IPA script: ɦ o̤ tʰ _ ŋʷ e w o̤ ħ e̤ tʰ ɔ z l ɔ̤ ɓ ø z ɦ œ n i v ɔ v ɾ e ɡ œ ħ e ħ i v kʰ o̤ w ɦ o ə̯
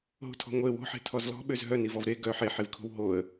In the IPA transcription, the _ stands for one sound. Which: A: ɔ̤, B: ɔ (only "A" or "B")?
A